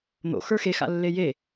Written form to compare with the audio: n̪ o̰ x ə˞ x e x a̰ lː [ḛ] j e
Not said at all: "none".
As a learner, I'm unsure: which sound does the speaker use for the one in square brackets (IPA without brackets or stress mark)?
e